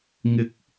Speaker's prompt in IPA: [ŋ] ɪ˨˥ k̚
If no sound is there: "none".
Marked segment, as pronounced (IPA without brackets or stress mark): ŋ